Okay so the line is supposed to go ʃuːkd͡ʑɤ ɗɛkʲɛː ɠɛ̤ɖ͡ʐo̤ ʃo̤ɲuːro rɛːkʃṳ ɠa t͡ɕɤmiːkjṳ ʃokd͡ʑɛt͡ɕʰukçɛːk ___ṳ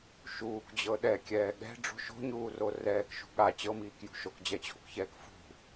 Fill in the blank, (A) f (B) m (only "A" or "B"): A